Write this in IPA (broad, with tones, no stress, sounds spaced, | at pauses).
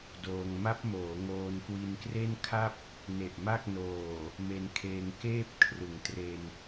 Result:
d oː˧ ŋ m a˦˥ p̚ m oː˩˦ ŋ oː˧ n k w i˧ n k r e˥˩ n kʰ a˥˩ p̚ | n e˨˩ ʔ m a˥˩ k̚ n oː˨˩ | m e˧ n kʰ eː˧ ŋ k eː˥˩ p̚ kʰ r ɯ˩˦ ŋ t r e˧ n